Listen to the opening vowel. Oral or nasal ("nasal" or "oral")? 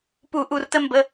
oral